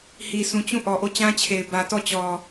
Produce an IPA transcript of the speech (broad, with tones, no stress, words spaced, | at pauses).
hi˨sũ˨t͡ɕũ˦˨ ʔɔ˨ʔo˦˨t͡ɕã˦t͡ɕʰe˨ɪ̯ bä˨tɔ˦˨t͡ɕɔ˨